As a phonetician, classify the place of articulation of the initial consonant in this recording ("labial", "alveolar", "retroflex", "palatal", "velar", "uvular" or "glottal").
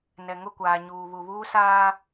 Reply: alveolar